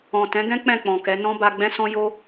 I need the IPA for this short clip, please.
ɔ̃˨ t ɛ̃˨˦ ɡ ɛ̃˦ k͡p ɛ̃˦˨ k͡p ɔ̃˨ k ɛ˨˦ n ɔ̃˦ b a˧ ɡ͡b ɛ̃˦ s ɔ̃˦ j o˦

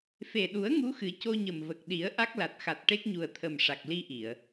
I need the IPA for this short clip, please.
f e˨˩ ɗ u˨˩˦ ə̯ ŋ u˧˥ x ɨ˨˩˦ c o˧ ɲ ə˨˩ m v ə˨˩ k̚ ɗ i˨˩˦ ə̯ ʔ a˦˥ k̚ l a˨˩ t̚ x a˨˩ t̚ ʈ e˦˥ k̚ ɲ u˨˩ ə̯ t̪ʰ ə˨˩ m ʂ a˨˩ k̚ l i˧ ʔ i˨˩˨ ə̯

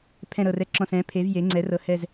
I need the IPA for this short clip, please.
pʰ ɛ̃˨˩ ɾ ɤ˨˩ r ɛ˨˩ ǁ ɔ̃˨˩ s ɛ̃˩˧ pʰ e˩˧ v j e˩˧ ŋ͡ǀ ɛ˩˧ r ɤ˩˧ h ɛ˨˩ z

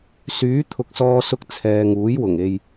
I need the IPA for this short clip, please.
s yː˨˥ t̪ʰ ʊ˨ k̚ s ɔː˧ s ʊ˧ k̚ t͡sʰ ɛː˨ ŋ uː˨˥ j w ʊ˨˩ ŋ e˧ j

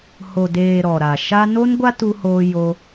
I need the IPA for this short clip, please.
h o˨ d eː˨ ɾ ɔ˨ ɾ a˨ ʃ a˧ n o˦ n ɡʷ a˦ t u˧ h oː˧ j o˧

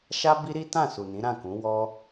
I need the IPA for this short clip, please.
ʃ a˦ b i˦ ɾ i˦ t ã˦˨ s u˨ n ĩ˨˦ ɾ ã˦˨ k ũ˨˦ w ɔ˦

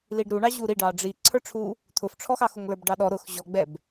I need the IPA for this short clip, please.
l i ɖ ɾ u ɳ ɑ ʑ u ɾ i ɖ ɑ ɖ͡ʐ i ǀʰ ə˞ ʈ͡ʂʰ u | t̪ʰ ʊ f ʈ͡ʂʰ ɔ x ɑ x ʊ ŋ l ə˞ b ɖ ɑ ɗ ɔ ɾ ʊ x ʑ ɔ ɡ͡b ɛ b

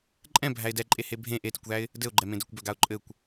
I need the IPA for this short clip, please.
ǃʼ ɛ̃ bʱ æ ɪ̯ d ɛ ǃʼ e h e bʱ ẽ ʔ e t i kʷ ð æ ɪ̯ | d ɘ ʊ̯ ɡ͡ǃ ɛ m ẽ d ɘ kʷ b œ ɡ a ʊ̯ ǃʼ ɘ kʷ

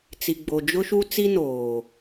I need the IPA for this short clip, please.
t͡s i˨ ɡ͡b o˨ d͡ʒ ʊ˦ ʃ u˦ t͡s i˦ n oː˨

